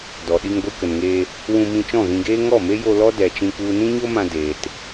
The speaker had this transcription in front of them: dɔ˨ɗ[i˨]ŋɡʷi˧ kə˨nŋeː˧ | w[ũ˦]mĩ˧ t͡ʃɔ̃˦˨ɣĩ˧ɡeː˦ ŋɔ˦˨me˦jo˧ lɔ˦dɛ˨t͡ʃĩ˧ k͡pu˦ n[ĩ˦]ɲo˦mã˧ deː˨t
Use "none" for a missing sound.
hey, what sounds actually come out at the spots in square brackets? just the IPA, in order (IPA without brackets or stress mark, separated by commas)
i˧, ũ˧, ĩ˦